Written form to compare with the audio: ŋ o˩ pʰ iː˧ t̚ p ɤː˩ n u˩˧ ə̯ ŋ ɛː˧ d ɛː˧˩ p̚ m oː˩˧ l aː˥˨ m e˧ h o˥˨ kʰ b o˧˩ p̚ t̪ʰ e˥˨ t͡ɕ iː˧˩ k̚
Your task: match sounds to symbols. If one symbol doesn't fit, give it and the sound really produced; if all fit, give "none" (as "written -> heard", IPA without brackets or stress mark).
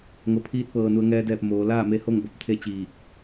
kʰ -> ŋ